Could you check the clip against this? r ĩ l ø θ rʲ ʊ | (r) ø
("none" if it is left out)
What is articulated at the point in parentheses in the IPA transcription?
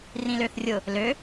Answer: l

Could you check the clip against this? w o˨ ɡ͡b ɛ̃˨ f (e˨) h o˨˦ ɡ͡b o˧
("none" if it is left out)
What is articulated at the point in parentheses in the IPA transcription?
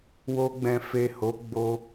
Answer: e˨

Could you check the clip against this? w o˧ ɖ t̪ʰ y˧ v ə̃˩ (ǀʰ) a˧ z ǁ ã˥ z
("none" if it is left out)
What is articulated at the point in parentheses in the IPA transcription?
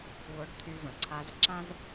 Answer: ǀʰ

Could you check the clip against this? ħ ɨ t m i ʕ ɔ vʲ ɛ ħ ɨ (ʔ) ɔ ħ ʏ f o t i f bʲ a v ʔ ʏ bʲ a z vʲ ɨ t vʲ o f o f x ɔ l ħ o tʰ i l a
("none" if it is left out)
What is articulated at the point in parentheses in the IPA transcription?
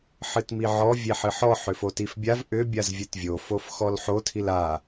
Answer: ħ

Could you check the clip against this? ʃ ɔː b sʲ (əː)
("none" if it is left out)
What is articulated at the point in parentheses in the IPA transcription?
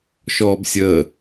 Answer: əː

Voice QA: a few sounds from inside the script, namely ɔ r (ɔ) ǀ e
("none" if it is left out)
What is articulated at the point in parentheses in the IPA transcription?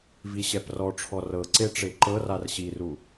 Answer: ɤ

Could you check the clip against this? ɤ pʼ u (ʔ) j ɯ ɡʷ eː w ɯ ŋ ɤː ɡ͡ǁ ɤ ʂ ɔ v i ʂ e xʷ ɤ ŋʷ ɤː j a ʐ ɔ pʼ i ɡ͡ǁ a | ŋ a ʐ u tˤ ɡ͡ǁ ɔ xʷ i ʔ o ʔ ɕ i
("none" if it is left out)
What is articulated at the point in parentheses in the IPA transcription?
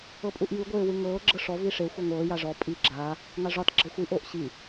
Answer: ʔ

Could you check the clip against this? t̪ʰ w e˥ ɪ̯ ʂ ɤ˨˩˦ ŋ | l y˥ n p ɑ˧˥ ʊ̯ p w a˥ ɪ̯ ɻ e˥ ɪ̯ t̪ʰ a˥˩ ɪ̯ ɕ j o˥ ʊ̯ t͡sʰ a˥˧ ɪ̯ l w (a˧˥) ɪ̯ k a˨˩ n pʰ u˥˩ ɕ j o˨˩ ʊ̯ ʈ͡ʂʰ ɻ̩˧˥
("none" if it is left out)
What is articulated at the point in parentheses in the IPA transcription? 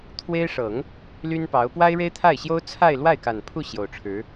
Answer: a˥˩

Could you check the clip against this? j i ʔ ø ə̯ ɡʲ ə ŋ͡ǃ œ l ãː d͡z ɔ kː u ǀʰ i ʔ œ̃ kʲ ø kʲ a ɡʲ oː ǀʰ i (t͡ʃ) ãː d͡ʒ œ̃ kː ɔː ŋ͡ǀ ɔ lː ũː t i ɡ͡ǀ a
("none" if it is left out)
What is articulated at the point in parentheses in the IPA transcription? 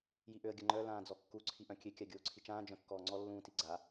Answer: t͡ʃ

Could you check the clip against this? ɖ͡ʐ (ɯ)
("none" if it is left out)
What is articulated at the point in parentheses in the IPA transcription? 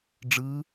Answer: ɯ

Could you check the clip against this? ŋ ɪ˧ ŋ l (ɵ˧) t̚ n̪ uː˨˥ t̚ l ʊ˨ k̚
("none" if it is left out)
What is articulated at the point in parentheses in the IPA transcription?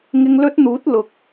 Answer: ɵ˥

